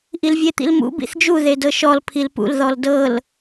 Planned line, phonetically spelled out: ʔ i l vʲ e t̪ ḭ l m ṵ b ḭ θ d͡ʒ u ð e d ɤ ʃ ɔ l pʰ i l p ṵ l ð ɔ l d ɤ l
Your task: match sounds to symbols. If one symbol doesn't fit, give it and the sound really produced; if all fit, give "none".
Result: none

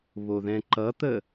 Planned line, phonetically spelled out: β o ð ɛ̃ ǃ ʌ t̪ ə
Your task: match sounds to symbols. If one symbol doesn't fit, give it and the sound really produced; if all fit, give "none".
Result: none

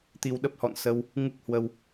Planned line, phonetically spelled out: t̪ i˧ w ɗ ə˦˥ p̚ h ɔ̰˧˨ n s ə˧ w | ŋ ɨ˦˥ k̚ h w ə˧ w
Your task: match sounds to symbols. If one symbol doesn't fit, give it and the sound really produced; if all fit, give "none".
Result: none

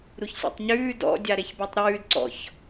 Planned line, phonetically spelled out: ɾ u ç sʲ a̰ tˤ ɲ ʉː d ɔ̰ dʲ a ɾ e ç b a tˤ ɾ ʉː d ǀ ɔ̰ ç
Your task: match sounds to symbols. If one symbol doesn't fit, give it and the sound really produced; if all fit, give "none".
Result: none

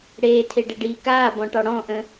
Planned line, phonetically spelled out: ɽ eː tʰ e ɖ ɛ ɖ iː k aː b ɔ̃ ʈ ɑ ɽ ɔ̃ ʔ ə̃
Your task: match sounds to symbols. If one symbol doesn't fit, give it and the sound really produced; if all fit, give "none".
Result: none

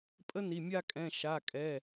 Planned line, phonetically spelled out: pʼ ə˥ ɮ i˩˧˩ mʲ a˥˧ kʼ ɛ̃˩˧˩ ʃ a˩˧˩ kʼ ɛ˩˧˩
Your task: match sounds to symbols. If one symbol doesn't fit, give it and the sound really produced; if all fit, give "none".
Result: ɮ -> n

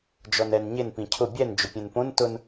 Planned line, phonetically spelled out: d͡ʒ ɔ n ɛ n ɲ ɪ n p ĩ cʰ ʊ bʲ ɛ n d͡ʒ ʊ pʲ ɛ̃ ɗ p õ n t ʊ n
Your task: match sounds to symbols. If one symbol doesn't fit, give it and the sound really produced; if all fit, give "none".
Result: ɗ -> n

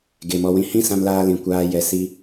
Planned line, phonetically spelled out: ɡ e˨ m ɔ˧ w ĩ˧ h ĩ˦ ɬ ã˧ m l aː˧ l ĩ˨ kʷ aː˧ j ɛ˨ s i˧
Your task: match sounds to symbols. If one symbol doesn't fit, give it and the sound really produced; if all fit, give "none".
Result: ɬ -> s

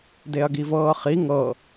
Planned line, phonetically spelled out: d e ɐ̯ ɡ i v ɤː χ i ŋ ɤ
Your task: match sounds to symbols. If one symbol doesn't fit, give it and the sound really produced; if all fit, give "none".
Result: none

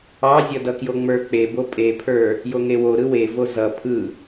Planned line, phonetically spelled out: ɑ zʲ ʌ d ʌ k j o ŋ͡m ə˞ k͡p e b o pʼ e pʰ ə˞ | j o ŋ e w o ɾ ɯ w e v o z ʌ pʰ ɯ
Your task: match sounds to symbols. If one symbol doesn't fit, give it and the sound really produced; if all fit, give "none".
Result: none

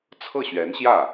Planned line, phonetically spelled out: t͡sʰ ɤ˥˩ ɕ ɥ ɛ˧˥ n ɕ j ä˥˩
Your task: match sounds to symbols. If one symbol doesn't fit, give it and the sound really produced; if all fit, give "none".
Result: none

